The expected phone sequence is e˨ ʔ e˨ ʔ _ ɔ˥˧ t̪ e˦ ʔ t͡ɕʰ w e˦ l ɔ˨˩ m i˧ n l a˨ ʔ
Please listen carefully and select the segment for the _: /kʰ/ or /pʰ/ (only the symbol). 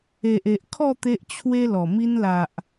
kʰ